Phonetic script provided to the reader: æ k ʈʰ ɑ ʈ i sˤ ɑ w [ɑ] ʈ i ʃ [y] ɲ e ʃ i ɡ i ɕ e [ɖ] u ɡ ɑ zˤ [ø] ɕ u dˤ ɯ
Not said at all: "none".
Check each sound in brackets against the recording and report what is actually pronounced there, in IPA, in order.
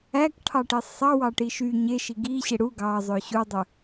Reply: ɑ, y, ɽ, ø

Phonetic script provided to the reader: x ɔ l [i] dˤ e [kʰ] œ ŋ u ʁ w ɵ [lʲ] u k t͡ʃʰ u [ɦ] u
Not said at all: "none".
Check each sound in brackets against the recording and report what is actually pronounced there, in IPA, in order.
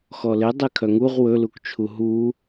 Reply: e, kʰ, l, ɦ

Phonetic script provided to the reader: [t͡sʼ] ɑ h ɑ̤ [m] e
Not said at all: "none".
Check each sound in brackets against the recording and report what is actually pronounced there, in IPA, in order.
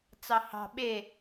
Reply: t͡s, ɓ

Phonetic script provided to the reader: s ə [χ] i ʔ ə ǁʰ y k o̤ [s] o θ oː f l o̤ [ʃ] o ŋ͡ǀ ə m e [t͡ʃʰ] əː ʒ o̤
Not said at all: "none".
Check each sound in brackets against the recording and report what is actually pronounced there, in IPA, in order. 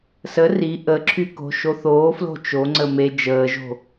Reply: r, ʃ, t͡ʃ, d͡ʒ

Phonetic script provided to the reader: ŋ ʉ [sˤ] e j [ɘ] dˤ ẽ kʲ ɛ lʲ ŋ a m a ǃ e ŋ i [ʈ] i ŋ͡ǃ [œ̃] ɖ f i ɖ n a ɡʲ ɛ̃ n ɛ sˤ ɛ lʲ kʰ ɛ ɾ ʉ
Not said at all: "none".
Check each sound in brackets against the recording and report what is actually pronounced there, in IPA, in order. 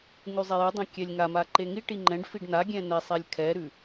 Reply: zˤ, ʉ, ʈ, ɛ̃

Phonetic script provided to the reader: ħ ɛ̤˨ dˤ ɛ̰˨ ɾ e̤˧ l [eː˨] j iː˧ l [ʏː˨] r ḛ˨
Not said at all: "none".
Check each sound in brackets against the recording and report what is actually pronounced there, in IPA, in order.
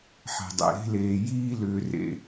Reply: eː˨, ʏː˨

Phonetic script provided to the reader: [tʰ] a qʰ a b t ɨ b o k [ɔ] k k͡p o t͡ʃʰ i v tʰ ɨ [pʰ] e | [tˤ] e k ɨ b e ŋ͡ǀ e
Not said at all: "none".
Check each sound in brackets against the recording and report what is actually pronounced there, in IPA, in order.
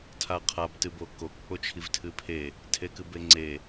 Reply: tʰ, o, pʰ, tʰ

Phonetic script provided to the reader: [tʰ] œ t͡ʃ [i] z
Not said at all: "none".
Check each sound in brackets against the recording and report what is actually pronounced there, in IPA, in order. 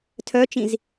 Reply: tʰ, ĩ

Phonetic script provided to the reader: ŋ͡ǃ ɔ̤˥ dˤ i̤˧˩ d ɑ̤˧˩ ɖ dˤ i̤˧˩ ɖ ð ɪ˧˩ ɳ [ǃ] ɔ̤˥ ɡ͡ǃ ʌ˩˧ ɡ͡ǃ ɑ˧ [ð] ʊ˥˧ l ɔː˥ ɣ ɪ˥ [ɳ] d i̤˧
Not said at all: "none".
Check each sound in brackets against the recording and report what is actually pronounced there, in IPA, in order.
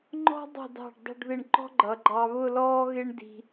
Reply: ǃ, β, ɳ

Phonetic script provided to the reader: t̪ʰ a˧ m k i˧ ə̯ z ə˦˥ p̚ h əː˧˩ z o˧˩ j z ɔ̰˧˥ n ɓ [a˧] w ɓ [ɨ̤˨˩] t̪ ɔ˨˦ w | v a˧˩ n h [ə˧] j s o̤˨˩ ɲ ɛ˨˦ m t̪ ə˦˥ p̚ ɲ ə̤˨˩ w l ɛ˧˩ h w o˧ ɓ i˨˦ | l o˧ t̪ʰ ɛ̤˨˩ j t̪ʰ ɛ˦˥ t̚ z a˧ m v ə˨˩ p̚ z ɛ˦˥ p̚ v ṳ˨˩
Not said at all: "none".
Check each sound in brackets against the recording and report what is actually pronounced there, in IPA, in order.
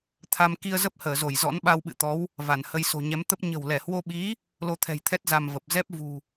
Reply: a˧, ɨ̰˧˨, ə˧

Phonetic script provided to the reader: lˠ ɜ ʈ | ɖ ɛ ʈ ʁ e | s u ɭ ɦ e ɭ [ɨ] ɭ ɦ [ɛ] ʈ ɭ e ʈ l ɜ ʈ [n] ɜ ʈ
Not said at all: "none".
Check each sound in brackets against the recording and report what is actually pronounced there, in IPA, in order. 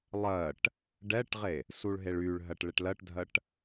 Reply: y, ɜ, dʱ

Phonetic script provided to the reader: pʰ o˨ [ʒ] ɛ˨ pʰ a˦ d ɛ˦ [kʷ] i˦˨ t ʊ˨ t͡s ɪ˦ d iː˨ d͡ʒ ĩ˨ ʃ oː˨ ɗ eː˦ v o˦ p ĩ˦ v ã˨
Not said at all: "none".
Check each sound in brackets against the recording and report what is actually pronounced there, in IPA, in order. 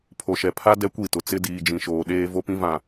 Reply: ʃ, kʷ

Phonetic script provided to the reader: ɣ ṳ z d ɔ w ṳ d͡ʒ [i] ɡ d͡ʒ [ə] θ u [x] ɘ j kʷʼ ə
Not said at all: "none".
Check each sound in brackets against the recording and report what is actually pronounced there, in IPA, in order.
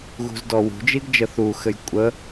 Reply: i, ə, x

